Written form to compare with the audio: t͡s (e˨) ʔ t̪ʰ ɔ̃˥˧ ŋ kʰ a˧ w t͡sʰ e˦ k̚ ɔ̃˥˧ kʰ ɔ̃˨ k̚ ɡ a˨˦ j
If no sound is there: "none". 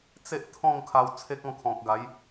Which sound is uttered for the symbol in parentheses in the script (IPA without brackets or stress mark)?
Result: e˦